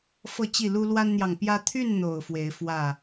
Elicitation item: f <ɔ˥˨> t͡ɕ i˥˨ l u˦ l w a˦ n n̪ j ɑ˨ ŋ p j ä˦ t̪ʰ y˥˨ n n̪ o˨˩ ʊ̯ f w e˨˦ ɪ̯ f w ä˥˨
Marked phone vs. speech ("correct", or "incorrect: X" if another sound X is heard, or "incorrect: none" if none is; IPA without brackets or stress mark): incorrect: ɤ˥˨